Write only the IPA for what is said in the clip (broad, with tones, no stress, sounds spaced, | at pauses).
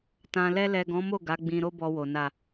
t ã˨ l ɛ˧ l ɛ˨ ɡ ɔ̃˨˦ m o˦˨ ɡ a˨˦ ɡ͡b ĩ˧ ɾ o˦ b ɔ˧ w o˨ n a˨